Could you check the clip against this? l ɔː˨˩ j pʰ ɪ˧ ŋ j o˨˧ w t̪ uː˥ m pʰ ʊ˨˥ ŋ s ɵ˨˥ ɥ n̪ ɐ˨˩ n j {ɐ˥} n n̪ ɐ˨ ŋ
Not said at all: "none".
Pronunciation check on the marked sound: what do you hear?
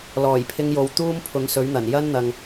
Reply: ɐ˥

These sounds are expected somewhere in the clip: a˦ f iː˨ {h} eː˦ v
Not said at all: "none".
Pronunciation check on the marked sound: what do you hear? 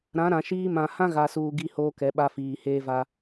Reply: h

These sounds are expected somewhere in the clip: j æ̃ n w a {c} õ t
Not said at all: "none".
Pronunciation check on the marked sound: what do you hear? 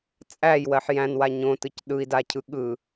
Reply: ɲ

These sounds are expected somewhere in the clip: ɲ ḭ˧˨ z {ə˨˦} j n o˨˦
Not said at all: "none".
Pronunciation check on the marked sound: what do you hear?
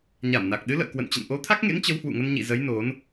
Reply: ə˨˦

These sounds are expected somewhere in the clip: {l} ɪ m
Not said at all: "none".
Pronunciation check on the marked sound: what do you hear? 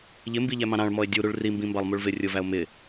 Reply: ʎ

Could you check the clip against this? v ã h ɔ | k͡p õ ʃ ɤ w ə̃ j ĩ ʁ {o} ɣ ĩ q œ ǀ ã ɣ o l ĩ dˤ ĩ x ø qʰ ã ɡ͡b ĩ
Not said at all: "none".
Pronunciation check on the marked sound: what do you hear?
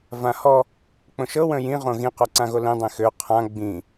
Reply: õ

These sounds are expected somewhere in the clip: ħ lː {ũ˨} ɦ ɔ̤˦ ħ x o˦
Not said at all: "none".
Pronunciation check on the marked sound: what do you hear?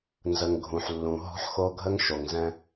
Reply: ũ˨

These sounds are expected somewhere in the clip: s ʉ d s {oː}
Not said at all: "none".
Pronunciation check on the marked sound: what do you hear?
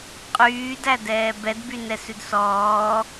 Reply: ɔː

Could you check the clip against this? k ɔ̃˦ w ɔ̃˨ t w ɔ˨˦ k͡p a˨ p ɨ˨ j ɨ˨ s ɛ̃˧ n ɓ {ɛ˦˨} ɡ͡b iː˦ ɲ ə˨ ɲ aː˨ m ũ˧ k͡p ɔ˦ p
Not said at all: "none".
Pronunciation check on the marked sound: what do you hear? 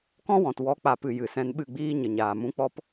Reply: ɨ˦˨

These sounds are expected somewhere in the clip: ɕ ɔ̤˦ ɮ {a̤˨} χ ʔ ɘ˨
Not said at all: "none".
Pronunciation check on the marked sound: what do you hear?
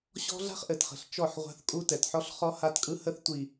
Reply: a̤˦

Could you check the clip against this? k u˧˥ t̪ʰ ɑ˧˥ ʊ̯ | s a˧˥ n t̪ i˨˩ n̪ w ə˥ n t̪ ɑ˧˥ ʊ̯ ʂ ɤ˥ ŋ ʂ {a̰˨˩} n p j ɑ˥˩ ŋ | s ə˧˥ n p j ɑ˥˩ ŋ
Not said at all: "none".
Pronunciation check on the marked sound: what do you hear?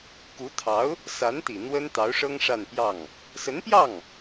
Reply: a˥˧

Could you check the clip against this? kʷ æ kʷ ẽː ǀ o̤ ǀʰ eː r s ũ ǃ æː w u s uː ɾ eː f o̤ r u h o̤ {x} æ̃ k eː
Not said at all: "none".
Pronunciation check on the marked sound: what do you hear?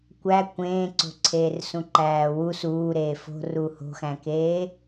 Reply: x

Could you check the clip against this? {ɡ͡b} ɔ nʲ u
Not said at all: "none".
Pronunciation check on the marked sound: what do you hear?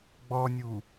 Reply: ɡ͡b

